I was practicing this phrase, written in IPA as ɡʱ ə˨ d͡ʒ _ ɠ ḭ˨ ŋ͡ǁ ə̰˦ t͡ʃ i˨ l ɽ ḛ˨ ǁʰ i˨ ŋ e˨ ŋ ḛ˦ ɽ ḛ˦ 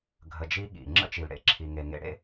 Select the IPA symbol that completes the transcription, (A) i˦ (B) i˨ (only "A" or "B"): A